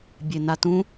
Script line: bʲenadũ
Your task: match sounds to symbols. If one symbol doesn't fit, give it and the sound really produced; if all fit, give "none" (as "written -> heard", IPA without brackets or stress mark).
d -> t